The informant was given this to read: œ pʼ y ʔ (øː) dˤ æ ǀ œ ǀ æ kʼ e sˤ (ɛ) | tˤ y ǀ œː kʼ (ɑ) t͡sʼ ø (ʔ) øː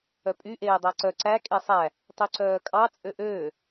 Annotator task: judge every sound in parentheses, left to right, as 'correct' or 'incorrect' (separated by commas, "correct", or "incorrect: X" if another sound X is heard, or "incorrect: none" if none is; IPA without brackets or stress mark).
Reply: incorrect: eː, incorrect: æ, correct, correct